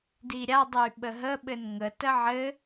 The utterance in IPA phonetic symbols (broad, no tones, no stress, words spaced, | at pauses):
diɾʲa dˤyɓəɦə ɓɘnŋə təʕɘ